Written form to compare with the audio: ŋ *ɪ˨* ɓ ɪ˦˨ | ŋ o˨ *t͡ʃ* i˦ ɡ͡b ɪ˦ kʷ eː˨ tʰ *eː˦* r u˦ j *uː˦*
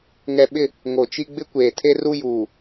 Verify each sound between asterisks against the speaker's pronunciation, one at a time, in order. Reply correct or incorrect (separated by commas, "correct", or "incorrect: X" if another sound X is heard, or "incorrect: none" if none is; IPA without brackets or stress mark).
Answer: incorrect: ɛ˨, correct, incorrect: e˦, incorrect: uː˨